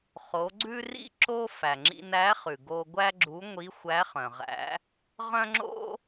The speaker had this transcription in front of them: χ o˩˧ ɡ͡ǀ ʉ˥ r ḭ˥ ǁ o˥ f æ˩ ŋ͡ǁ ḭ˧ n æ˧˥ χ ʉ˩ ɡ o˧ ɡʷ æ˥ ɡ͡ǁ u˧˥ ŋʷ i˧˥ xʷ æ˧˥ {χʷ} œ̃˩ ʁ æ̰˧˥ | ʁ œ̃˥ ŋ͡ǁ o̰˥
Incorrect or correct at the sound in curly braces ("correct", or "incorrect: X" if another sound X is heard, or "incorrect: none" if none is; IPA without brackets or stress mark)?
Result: incorrect: χ